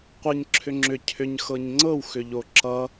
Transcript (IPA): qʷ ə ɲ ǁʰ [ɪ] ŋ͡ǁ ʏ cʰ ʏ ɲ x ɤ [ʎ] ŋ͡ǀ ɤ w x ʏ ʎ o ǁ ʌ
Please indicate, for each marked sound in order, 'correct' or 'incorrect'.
incorrect: ʏ, incorrect: ɲ

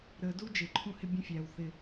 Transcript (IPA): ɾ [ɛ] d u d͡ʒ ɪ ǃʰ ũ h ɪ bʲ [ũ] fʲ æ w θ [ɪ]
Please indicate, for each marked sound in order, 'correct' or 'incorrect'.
incorrect: ə, correct, correct

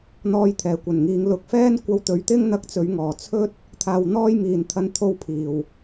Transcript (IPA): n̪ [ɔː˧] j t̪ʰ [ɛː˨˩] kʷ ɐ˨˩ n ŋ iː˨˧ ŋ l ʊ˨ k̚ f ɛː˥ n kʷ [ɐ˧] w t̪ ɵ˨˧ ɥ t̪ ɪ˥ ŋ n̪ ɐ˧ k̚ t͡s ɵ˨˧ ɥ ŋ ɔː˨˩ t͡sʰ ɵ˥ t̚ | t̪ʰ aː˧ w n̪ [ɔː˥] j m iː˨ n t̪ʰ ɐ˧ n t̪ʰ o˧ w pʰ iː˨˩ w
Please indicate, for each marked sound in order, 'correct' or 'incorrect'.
correct, correct, correct, correct

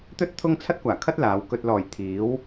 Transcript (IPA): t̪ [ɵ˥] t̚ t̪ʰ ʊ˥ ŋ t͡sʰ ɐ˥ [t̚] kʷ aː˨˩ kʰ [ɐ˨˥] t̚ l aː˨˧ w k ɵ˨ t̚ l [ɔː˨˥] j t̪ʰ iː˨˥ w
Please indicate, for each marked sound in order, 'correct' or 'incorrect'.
correct, correct, incorrect: ɐ˥, incorrect: ɔː˨˩

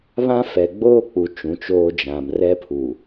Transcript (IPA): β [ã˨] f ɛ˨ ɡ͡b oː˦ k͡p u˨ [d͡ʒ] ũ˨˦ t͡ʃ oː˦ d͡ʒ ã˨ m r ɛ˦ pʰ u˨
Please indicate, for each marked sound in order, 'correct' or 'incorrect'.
incorrect: ã˦, incorrect: t͡ʃ

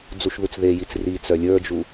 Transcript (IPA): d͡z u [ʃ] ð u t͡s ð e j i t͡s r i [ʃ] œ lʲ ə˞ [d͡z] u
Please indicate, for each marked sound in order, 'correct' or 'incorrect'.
correct, incorrect: t͡s, incorrect: d͡ʒ

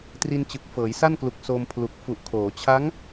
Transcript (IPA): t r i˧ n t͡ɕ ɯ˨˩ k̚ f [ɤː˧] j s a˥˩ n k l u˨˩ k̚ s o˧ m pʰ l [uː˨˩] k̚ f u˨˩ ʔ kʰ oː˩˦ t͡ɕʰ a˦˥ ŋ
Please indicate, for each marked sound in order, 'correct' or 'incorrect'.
incorrect: ɤː˩˦, incorrect: u˨˩

